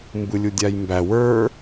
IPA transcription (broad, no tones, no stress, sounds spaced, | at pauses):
m b ɯ lʲ u dʲ a j m b æ w ə˞